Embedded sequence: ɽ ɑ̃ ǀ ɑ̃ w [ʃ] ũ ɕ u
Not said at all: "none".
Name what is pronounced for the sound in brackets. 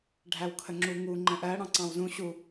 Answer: z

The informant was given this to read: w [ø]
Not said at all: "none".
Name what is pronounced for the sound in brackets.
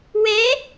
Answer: ɛ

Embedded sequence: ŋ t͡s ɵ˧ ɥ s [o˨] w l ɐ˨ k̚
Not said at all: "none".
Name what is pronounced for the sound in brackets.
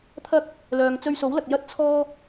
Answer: o˨˥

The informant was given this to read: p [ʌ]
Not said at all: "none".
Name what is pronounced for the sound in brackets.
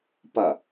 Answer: ʌ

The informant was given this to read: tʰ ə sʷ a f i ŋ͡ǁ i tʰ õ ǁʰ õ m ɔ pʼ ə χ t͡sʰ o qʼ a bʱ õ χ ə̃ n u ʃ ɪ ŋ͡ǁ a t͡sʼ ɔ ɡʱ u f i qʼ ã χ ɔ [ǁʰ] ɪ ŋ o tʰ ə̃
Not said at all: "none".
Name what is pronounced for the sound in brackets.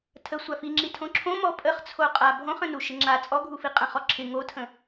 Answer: ǁʰ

